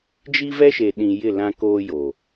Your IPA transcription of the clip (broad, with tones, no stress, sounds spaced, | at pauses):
d͡ʒ i˦ v ɛ˦ ʃ e˨ ɗ ĩ˨ j ɪ˦˨ l ã˦ k oː˦ j o˨